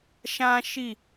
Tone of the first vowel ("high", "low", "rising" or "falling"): high